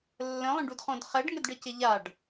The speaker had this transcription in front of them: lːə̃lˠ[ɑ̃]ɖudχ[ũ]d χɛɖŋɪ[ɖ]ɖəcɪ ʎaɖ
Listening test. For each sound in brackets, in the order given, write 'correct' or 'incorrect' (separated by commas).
incorrect, incorrect, incorrect